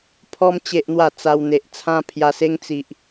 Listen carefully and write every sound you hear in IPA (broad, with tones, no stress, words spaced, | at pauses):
pʰɔ˦m t͡ɕe˦ʔn̪wa˥˧t͡sa˧w n̪e˨ʔ t͡sʰã˦pʰja˧se˦ŋ t͡si˨ʔ